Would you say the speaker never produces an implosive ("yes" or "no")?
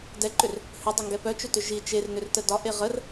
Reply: yes